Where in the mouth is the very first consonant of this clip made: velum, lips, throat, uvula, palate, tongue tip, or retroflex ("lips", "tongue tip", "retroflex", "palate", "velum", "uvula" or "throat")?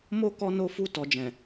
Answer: lips